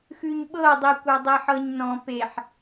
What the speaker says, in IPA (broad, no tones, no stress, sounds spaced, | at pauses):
x ʉ ɲ ɓ ɤ dˤ i kʷ ə˞ dˤ i ħ ɤ ɲ n ɔ̃ p e ħ